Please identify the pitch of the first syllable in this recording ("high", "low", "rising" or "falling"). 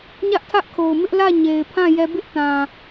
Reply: high